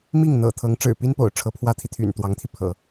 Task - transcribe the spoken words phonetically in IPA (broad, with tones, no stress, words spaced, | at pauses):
mi˥˩ŋ n̪ɤ̰˨˩ t̪ʰɤ˧˥ŋʈ͡ʂɻ̩˨˩pi˥npo̰˨˩ʊ̯ ʈ͡ʂʰɤ˧˥pʰwä˥t̪ʰi˨t̪ʰy̰˨˩n t̪wɑ˧˥ŋt̪ʰi˧ pʰɤ̰˨˩˦